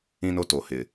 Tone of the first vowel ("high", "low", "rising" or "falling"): high